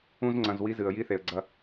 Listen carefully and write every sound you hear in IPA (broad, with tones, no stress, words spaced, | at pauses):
ũ˦z ŋ͡ǀɐ̃˧zwi˦zɨ˨ə̯ ji˦θe˨ə̯ɡ͡ǀɐ˧